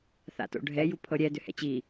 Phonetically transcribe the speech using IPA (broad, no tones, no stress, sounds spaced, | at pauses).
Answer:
θ a̰ t o̰ ɖʱ ɛ j u pʰ ɤ ɾʲ ɛ d ʏ h ɛ̰ t͡ɕ i